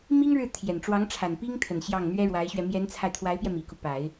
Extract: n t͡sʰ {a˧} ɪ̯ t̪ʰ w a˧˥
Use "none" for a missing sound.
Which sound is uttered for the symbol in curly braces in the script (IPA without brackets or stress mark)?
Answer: a˧